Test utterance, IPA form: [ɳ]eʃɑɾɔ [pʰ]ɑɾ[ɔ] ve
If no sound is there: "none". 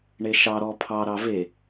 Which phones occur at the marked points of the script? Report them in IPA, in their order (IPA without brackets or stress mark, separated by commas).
ɳ, pʰ, ɑ